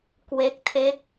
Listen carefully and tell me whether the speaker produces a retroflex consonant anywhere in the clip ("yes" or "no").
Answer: no